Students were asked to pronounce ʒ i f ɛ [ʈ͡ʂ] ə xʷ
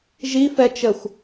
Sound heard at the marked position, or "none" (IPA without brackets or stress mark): t͡ʃ